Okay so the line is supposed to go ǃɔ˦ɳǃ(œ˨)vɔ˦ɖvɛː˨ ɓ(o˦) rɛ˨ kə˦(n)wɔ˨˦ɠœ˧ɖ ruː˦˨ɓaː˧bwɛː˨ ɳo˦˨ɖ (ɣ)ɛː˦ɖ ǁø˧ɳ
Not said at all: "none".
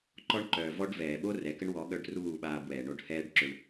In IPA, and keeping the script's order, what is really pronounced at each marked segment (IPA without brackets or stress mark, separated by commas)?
œ˨, o˦, ɳ, h